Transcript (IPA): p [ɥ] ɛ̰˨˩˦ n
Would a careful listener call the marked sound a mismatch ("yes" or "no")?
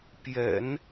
yes